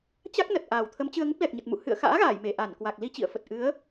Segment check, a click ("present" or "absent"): absent